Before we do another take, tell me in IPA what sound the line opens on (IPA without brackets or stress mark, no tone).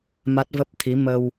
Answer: m